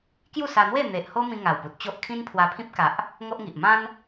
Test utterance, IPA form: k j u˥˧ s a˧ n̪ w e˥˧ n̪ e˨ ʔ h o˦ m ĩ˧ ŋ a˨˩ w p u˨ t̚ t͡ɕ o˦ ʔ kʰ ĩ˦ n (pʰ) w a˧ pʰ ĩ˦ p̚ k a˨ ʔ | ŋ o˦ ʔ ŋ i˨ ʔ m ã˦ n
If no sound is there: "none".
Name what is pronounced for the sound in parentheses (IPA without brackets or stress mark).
pʰ